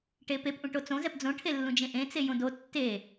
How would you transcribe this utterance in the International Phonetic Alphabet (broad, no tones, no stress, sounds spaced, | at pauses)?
ʈ e p e p ʔ ũ ʈ o t͡s õ z ɛ p d͡z õ ʈʰ e lː ũ d͡ʒ ẽ ʔ ẽ t͡s e j õ d o tː e